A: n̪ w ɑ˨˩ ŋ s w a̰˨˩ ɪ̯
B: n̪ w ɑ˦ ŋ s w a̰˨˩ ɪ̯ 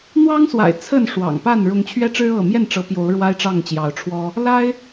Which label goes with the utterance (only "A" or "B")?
B